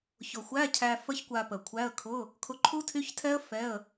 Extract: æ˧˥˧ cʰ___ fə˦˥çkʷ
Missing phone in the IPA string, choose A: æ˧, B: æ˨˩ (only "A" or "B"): A